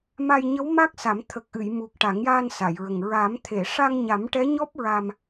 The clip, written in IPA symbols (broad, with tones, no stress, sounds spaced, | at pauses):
m a˧ j ɲ ə˧˥ w m a˦˥ k̚ s a˨˩˦ m t̪ʰ ə˨˩ k̚ ʔ ɨ˨˩˨ j m u˨˩ k̚ ʈ a˨˩˦ ŋ j aː˧ n s a˨˩˨ j ɹ ə˨˩ ŋ ɹ a˨˩˦ m t̪ʰ e˨˩˨ ʂ a˧ ŋ ɲ a˨˩˦ m ʈ ɛ˧˥ ɲ ɔ˦˥ p̚ ɹ a˧ m